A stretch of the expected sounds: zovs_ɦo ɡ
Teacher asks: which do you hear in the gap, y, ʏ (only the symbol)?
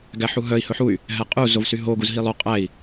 y